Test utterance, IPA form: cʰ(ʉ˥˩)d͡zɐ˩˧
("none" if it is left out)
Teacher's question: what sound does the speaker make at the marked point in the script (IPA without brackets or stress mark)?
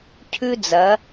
ʉ˦